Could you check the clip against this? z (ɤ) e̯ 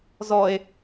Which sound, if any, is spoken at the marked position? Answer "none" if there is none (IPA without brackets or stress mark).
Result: ɔ